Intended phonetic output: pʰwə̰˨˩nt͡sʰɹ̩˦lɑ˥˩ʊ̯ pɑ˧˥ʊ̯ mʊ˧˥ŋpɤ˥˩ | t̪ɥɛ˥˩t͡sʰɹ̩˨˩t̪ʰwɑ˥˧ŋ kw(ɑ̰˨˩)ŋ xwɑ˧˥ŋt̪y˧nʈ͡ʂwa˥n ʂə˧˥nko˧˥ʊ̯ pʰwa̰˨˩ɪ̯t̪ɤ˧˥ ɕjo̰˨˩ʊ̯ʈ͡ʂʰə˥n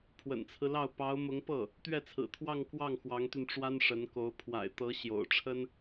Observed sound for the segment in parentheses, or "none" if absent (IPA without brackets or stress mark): ɑ˥˩